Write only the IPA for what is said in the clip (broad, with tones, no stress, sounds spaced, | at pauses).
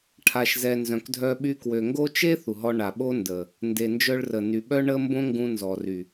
ʈʰ a˨ ʃ z ɛ˨ n z œ̃˨ k dʱ œ˧ ɓ y˧ k w ø˨ ŋ ɡ o˦ t͡ʃ e˦ θ u˨ ɦ ɔ˧ ɳ a˨ ɓ o˦ n d əː˨ | n d e˨ n d͡ʒ œ˧ ɭ r ə˨ n y˨ ɓ œ˦ ɳ ə˦ m b õ˦ ŋ ɡ ũ˧ n z ɔ˨ r y˨